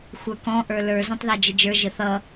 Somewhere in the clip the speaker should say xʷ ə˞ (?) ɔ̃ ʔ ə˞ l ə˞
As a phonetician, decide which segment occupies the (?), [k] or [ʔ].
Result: k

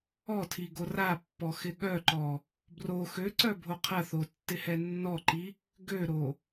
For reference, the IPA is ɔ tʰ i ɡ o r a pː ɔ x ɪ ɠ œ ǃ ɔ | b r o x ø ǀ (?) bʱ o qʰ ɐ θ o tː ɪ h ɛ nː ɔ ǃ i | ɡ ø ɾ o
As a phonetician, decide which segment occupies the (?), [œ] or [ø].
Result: œ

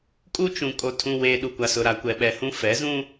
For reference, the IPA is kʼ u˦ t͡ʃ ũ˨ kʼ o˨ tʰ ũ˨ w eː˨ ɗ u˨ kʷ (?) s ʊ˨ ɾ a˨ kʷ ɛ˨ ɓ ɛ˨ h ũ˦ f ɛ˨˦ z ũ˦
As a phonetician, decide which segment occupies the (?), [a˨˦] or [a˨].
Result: a˨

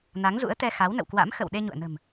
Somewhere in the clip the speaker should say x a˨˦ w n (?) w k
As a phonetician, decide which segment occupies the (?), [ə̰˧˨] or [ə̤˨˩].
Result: ə̰˧˨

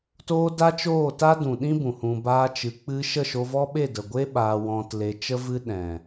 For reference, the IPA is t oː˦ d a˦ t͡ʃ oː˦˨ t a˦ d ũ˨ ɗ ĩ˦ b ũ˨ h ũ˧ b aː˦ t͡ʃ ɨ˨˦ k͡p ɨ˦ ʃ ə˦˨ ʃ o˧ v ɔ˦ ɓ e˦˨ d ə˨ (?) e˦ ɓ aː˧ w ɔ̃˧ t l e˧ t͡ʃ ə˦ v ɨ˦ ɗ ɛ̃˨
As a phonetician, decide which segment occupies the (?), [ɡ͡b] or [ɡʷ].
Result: ɡʷ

